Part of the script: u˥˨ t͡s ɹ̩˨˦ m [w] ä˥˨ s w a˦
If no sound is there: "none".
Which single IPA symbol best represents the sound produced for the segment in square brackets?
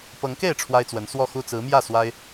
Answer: j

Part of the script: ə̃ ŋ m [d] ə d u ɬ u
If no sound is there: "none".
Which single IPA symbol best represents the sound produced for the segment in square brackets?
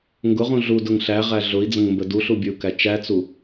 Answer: b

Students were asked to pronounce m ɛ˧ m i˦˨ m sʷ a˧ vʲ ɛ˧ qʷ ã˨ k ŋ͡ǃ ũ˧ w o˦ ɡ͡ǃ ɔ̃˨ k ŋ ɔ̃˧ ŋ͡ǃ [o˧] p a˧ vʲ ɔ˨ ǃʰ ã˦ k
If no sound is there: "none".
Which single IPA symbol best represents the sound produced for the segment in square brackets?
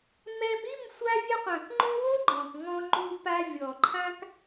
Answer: u˧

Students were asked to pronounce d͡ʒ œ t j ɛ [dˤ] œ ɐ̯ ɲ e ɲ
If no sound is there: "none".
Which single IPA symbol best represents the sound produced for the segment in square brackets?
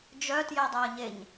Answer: dˤ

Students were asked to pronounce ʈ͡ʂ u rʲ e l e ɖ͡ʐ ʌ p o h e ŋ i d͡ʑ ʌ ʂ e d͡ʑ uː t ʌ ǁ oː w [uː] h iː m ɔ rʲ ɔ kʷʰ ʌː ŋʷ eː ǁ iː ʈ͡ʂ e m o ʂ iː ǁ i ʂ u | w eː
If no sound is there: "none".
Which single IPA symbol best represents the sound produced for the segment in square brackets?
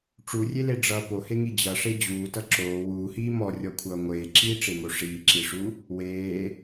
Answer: uː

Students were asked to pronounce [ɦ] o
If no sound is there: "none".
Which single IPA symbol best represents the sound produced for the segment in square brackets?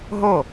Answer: ɦ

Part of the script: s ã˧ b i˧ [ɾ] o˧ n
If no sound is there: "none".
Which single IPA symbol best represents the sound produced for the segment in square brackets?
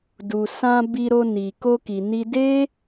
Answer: ɾ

